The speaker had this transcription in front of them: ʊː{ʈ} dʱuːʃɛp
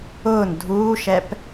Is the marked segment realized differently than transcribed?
yes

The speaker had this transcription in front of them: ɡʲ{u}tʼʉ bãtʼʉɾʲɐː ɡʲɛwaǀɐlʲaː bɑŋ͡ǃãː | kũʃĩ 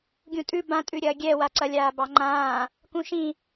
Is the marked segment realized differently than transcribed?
yes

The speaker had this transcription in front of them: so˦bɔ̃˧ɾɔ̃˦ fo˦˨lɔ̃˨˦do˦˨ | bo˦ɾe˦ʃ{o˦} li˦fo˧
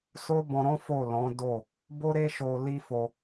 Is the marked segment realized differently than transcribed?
yes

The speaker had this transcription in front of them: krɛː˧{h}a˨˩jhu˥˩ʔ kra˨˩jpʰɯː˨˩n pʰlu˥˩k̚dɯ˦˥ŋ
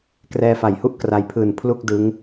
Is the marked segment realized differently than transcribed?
yes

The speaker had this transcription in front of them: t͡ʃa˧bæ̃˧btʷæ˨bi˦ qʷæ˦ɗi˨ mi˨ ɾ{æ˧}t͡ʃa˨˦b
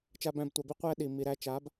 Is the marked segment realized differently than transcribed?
no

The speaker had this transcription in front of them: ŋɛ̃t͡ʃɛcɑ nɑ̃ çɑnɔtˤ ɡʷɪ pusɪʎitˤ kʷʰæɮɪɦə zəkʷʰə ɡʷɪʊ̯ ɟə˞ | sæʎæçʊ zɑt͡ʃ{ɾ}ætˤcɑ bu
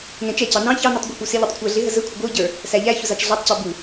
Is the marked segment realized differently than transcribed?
yes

